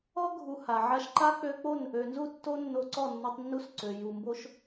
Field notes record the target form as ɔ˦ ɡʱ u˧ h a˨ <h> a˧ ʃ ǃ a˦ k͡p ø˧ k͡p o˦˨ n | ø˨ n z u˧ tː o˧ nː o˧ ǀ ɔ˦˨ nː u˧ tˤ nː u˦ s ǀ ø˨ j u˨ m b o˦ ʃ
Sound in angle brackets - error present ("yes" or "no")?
yes